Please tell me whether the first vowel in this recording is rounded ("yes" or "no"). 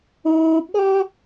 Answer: yes